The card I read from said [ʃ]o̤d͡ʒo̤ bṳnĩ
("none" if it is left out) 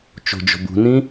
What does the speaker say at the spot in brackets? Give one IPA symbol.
t͡ʃ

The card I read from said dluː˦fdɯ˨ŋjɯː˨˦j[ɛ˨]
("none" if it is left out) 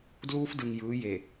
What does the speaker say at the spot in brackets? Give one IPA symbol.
e˨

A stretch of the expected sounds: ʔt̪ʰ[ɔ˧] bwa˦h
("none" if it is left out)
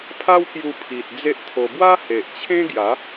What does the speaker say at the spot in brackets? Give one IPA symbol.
o˧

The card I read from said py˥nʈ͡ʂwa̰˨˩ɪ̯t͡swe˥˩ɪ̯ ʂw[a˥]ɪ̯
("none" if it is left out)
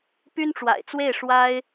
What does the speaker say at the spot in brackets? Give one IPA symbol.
a˥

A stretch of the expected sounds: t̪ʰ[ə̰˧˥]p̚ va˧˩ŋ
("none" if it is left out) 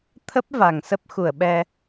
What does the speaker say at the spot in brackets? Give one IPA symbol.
ə˦˥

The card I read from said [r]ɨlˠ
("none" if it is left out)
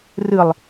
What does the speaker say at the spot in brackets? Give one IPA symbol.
r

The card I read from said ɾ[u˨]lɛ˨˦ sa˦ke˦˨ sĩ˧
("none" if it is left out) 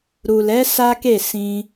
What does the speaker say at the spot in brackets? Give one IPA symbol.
u˨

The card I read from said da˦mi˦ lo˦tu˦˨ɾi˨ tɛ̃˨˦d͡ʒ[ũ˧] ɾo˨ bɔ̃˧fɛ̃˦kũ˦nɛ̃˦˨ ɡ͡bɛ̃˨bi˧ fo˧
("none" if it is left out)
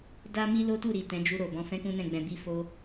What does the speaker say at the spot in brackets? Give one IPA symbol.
u˧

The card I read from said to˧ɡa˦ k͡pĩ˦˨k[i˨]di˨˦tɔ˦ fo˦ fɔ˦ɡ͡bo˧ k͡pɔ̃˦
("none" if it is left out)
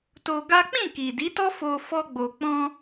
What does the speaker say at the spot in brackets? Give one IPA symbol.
i˨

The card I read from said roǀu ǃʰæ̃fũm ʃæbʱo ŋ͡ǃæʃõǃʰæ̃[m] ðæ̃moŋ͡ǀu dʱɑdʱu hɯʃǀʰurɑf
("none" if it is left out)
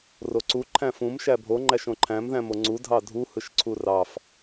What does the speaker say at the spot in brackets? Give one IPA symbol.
m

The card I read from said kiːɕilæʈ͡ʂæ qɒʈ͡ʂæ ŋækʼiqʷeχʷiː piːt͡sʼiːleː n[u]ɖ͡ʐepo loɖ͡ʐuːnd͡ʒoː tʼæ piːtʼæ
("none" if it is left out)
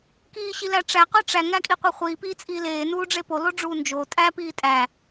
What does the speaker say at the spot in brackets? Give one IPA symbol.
uː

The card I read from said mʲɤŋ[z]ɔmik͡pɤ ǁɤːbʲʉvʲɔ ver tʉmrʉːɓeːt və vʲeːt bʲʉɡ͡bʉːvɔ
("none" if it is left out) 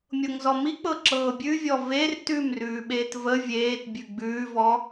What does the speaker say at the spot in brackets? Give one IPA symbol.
z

